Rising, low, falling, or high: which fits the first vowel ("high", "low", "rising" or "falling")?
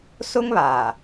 high